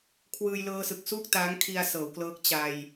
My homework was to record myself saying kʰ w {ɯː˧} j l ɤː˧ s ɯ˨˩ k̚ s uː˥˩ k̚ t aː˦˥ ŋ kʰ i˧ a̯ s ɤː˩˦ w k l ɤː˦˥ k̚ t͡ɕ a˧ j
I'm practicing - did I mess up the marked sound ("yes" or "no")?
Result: no